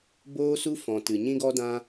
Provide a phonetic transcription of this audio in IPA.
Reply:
boː˦su˦ fɔ̃˨ tɨ˨ɲĩ˦ɡɔ˦dã˦

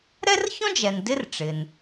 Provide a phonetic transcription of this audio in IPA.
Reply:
ɾɛ˥rçɔ̃˥d͡ʒɛ˩n dɪ˥rʈ͡ʂɪ˩n

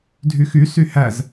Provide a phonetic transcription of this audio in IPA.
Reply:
dʱyxysy hæz

